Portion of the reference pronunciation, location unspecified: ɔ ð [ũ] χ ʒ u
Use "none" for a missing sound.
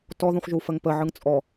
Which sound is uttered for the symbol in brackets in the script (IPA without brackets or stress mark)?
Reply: ũ